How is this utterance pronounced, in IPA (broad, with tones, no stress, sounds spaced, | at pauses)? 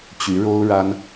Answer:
t͡ɕ y˧˥ ɻ o˥ ʊ̯ ɻ a˥ n